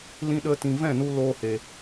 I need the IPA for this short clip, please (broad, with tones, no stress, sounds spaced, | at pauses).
l ĩ˦ ɗ ə˦ t ĩ˨ v ɛ̃˦˨ n u˧ l oː˦ h e˨